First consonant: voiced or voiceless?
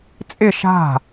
voiceless